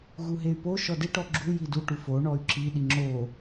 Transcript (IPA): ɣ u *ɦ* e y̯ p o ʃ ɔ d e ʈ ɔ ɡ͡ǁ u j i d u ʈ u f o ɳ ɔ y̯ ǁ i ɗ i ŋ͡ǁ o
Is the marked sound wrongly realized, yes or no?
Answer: no